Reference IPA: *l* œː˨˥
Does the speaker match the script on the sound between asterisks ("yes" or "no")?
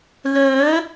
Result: yes